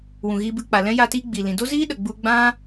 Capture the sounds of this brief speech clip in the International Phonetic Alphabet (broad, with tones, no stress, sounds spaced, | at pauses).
w ũ˨ ɣ iː˧ b ɨ˧ k͡p a˨ l ɛ̃˦ j a˧ t iː˧ ɡ͡b i˨ l ĩ˨ d o˦ z iː˦ ɗ ə˨ ɡ͡b u˧ ɡ͡b ã˦